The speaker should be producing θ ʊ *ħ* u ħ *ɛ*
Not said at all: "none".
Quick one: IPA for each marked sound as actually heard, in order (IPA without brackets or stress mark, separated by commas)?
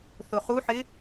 χ, ɪ